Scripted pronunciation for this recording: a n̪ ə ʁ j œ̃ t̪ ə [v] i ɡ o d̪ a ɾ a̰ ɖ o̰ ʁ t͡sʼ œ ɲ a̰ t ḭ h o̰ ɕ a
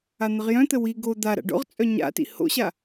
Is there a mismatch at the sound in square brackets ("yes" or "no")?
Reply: yes